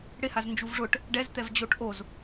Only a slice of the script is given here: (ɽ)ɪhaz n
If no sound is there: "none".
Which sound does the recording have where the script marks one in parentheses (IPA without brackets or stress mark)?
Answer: ɽ